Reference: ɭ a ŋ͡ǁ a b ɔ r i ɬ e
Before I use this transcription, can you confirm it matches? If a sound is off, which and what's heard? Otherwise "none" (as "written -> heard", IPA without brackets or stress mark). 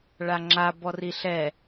e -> ɛ